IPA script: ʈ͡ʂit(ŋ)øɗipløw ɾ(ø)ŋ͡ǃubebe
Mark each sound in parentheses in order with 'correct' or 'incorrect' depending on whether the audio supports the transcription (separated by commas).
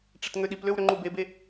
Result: correct, correct